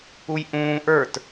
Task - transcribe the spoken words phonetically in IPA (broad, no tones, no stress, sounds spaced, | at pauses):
u j ʔ ũː ʔ ə˞ t